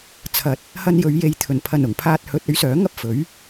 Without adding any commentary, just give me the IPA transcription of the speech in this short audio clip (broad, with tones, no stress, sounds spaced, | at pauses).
t͡sʰ ɐ˨˥ t̚ | h ɐ˧ n j ɵ˨˧ ɥ j e˨˧ j t̪ʰ ɵ˨˩ n pʰ ɐ˨˩ n ʊ˨˩ ŋ pʰ aː˧ t̚ h ɵ˨˥ t̚ ɵ˨˥ ɥ s œː˨˥ ŋ ɐ˥ p̚ f ɵ˨˥ ɥ